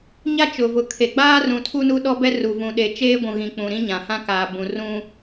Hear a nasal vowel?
yes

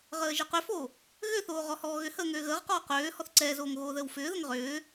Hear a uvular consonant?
yes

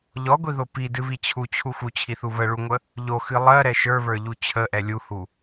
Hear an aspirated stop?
yes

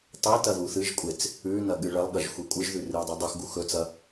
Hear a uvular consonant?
no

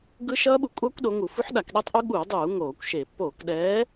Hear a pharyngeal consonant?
yes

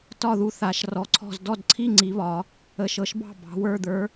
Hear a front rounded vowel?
no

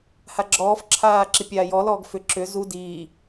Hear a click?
yes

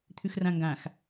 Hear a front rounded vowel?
no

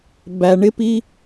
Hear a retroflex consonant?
yes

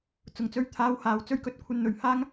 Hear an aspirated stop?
yes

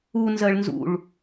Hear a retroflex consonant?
yes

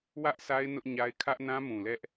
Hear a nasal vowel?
yes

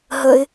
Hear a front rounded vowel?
no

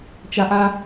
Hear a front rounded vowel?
no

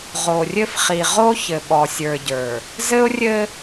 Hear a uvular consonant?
yes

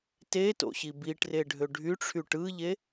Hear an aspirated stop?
yes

